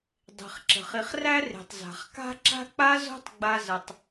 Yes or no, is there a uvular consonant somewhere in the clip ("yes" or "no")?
yes